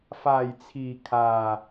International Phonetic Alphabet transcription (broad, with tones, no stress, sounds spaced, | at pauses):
f aː˨˩ j t͡sʰ iː˨˩ kʰ aː˨˩